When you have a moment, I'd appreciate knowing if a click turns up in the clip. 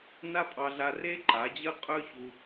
yes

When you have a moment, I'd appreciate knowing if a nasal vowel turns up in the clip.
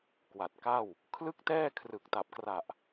no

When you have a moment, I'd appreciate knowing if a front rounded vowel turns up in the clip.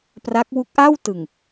no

